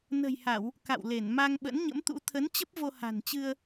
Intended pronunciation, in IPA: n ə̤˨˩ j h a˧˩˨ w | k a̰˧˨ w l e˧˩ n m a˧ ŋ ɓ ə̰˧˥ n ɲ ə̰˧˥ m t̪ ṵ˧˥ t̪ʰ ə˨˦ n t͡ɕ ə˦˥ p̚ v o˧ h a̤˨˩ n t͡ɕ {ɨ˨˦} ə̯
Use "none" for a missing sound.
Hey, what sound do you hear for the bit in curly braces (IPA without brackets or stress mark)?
ɨ˧